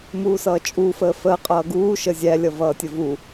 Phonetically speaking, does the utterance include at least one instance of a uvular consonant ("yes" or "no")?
yes